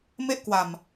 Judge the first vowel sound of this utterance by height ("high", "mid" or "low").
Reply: mid